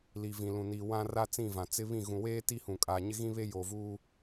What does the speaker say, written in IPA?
l i˨ v ĩ˨ l ũ˨ n i˨ w ã˦ r a˦ t͡s ĩ˦˨ v ã˨ t͡s ɪ˦ β ĩ˦˨ ɣ ũ˨ w eː˦ t i˦ h ũ˨ kʼ aː˨ ɲ ɪ˦ ɣ ĩ˦ β e˦ j oː˨ v uː˦

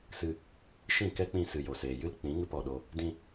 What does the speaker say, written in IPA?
s ɨ˧ | ʃ ĩ˦˨ k ɛ˦ k͡p ĩ˧ s ɨ˨ j o˨ s eː˨ j ɨ˦ l k͡p ĩ˨˦ ŋ ɨ˧ p ɔ˨ ɗ o˧ | d ĩ˧

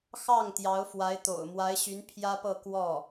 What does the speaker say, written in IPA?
x ɑ˥˩ ŋ t̪ j ɑ˧˥ ʊ̯ f w a˧˥ ɪ̯ t̪ o̰˨˩ ʊ̯ m w a˧˥ ɪ̯ ɕ y˧˥ n pʰ j ä˥ p ɤ˥˧ k w ɔ˥˩

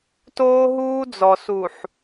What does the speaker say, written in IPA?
t oː˦ ɦ uː˦ d͡z ɔ˨ s u˨ ħ

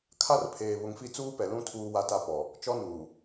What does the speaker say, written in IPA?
kʰ a˦ r pʰ eː˨ β ʊ˨ ŋ f i˦˨ t͡s uː˦ p ɛ˨ l ũ˦ tʰ uː˦ w a˦ t a˦ p ɔ˨ | t͡ʃ ɔ˦ n uː˨

